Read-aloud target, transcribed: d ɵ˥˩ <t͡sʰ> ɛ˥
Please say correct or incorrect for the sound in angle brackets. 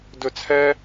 correct